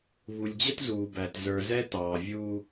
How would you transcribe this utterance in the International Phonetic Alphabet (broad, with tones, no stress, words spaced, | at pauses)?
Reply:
βu˨lʲd͡ʑə˦tzuː˨bæ˨t zə˞˨zɛ˦tɑː˨ vʲuː˦